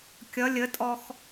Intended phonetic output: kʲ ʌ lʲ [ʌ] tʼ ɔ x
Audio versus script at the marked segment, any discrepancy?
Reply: yes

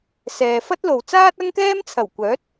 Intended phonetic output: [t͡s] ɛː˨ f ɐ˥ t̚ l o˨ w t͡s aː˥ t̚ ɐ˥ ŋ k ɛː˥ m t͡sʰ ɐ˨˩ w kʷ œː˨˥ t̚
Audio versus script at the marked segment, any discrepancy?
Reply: yes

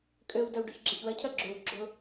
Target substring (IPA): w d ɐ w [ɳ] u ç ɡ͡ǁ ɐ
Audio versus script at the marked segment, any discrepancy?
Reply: yes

